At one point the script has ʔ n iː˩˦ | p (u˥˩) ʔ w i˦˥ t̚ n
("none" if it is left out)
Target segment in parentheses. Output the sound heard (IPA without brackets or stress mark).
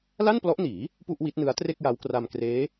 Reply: u˥˩